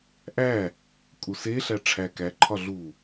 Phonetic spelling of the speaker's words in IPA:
ʔ æ | kʼ u s e ɬ æ ʈ͡ʂʰ æ k æ ǃʰ ɒ ɮ u

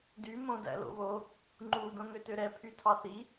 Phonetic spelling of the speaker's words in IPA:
d y m õ d æ̰ l o̰ β o | ŋ͡ǃ u d õ ŋ ø t ø ɾ ɛ pʰ y tʰ ɑ θ i

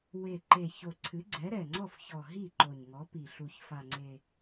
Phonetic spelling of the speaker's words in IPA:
w e˨˩ ǃ e˨˩ ç o˨˩ ǀʰ ɨ˨˥ ɡ͡ǀ ɛ˨˥ ɾ ɛ˨˩ ŋ͡ǀ ɔ˥˩ f ç ɔ˨˩ ɦ i˥˩ ǃ o˨˩ ɲ ŋ ɔ˨˥ p i˨˩ ɬ u˨˩ ç f a˨˩ ŋ͡ǀ e˨˩

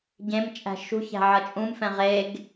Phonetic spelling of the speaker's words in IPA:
ɟ ẽ m t͡ʃʼ æ̤ ʃ ṳ ç æ̤ ʕ ʌ t͡ʃʼ ũ m f ɛ̃ ʁ e ɡ

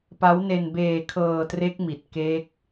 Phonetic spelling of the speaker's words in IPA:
p a˦˥ w n e˧ n b eː˧ kʰ ɤː˧ t r e˦˥ k̚ m i˨˩ t̚ k e˦˥ k̚

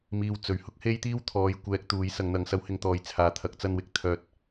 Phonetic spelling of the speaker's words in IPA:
m iː˨ w t͡s ɵ˨˥ ɥ h ʊ˥ k̚ h e˥ j t̪ iː˥ w t̪ʰ ɔː˨˧ j kʷ ɛː˨ k̚ t̪ uː˨˧ j s ɐ˨ ŋ n̪ ɐ˨ ŋ s ɐ˨˧ w h ɪ˨˧ ŋ t̪ ɔː˨˧ j t͡sʰ aː˨ t̪ʰ ɐ˨˥ k̚ t͡s ɐ˧ n w ɪ˧ k̚ t̪ʰ œː˧ t̚

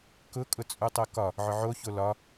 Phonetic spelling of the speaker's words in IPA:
k ʊ kʼ ʊ t͡sʼ u tˤ o k ɒ | ʕ ʊ ʕ o ç o l ɒ

